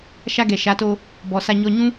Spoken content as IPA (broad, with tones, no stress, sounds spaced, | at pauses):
ʃ a˧ ɡ ɛ˨ ʃ a˨˦ t o˧ | b ɔ˨ s a˧ ɲ ɔ˧ ɲ ũ˦